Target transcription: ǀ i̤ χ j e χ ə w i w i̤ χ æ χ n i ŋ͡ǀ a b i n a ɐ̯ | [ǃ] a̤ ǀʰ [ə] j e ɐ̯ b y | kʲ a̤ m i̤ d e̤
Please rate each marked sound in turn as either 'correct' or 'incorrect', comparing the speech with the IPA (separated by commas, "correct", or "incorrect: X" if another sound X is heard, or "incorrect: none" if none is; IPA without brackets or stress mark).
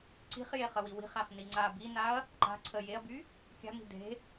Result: correct, correct